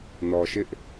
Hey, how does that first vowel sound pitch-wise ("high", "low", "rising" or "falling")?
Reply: low